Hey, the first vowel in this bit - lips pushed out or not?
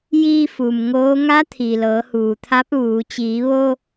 no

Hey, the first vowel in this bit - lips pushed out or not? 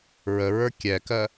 no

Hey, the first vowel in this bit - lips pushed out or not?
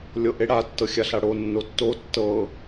no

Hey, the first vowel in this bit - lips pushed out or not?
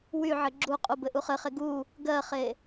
yes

